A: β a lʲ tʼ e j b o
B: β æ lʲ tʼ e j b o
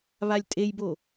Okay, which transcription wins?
A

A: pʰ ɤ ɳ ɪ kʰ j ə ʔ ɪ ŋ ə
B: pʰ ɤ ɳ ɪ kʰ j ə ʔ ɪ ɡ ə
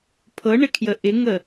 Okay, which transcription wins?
A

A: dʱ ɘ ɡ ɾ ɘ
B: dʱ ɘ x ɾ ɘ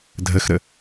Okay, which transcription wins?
B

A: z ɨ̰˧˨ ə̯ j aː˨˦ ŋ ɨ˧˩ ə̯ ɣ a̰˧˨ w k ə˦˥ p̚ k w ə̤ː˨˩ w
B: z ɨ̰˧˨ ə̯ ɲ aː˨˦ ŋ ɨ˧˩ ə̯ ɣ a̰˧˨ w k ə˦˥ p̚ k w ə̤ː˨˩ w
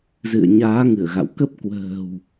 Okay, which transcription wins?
B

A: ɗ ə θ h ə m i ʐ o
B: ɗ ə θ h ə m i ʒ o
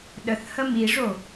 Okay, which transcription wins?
A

